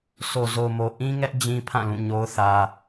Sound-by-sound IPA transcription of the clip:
so˨zo˨mo˨ ʔĩ˦ŋɛ˦ʔ d͡ʑĩ˦pʰã˦˨ lũ˦˨ɲo˦ʊ̯θä˦

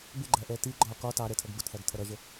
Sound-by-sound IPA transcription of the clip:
bɪɡ͡ǃæʔɛ ti ɡ͡ǃɒ kɒ tɑɾɛtʰʌɡ bʊtθæɡtʰʌ ɾʌʒə

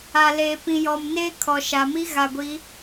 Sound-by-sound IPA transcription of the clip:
a˨ leː˨pĩ˨jɔ˨mneː˦ kʰɔ˨ʃa˨ mi˦ɣa˨ɡʷi˨˦

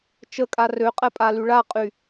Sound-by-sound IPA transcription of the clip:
t͡ʃəkʼa røqʼɛpʼaly ɭaqʼy

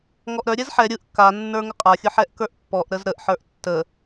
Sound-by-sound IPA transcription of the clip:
ŋɔʔɾœɾʲɛz ħɛ ɾʲɯʔ ka nːə˞ŋəqʼaxʲɯ ħɛʔkə˞ʔpːɔʔɾəz ɾəʔħə˞ʔ tːə

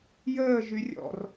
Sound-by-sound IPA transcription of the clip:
jəː ʒyrʲɔ̰r

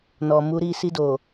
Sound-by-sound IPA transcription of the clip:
nɔ˨mu˨˦ɾi˦˨ si˧do˨

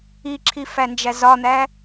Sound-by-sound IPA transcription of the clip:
iǁʰi fænd͡ʒæzɒn̪æ

